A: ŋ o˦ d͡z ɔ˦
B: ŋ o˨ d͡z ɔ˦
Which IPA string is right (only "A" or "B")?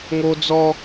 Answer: A